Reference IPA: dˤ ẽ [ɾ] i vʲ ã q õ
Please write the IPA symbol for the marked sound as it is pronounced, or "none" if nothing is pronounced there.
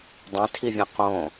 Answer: tʰ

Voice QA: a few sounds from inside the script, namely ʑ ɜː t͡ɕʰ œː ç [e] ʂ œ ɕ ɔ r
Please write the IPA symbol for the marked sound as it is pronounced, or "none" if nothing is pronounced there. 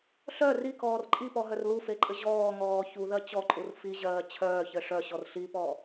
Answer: ɘ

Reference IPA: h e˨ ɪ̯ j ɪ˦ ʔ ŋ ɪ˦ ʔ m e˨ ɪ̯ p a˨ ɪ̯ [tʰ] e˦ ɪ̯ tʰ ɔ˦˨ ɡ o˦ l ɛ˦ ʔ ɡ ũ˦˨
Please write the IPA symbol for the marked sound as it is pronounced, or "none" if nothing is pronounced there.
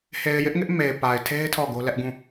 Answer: tʰ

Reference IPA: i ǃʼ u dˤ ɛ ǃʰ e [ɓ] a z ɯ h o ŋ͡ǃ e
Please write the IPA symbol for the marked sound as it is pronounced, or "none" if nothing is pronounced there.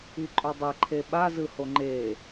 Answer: ɓ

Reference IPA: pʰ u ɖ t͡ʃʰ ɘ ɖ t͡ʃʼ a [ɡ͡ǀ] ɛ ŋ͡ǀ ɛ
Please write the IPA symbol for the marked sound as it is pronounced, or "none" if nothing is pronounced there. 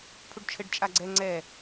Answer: ɡ͡ǀ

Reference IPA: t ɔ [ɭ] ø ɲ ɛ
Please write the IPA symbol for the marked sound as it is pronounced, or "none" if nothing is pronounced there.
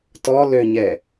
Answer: l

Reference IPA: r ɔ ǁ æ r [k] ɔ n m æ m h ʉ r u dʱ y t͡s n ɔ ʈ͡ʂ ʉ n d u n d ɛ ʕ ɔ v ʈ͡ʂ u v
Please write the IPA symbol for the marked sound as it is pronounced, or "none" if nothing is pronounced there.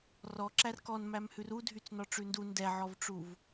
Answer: k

